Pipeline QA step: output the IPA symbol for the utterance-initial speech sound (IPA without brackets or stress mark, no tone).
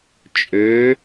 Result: t͡ʃʼ